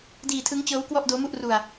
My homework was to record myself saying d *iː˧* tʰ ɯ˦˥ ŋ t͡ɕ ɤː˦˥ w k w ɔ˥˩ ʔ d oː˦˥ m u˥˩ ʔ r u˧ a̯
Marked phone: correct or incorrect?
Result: correct